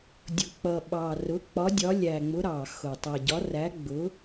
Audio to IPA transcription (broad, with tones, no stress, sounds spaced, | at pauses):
dʲ ʊ˨˩ k͡p ʌ˨˩ ɓ ɑ˨˩ r ʊ˨˥ k͡p ɒ˨˥ dʲ ɒ˨˥ lʲ æ˨˩ ŋ͡m ʊ˨˥ ɾ ɑ˨˩ x ʊ˨˩ tˤ ɛ˨˩ ɟ ɒ˨˥ r æ˨˥ ɡ͡b ʊ˨˥